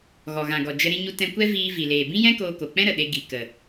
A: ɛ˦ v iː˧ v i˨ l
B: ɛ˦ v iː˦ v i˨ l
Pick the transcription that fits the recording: A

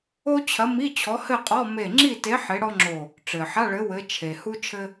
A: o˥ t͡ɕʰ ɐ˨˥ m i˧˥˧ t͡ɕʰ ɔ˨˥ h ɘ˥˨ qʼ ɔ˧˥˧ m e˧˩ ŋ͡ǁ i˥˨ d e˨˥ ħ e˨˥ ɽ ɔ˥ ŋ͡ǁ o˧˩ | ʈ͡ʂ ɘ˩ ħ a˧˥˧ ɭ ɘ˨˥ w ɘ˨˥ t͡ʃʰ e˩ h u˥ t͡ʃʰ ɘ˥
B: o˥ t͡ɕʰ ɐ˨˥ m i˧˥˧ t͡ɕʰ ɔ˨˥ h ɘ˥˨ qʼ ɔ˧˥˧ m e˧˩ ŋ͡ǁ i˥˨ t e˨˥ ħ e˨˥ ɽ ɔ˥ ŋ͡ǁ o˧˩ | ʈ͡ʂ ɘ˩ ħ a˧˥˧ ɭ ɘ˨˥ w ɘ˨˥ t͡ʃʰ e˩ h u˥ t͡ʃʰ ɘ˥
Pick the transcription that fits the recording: B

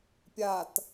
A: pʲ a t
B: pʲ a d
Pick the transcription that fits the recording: A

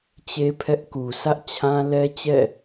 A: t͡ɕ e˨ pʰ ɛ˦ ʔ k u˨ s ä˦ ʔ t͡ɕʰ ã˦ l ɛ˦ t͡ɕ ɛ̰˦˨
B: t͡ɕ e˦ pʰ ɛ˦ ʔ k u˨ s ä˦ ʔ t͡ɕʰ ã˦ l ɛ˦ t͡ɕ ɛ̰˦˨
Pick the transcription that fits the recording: B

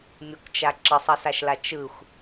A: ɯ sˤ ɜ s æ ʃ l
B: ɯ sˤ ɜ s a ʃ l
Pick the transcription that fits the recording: B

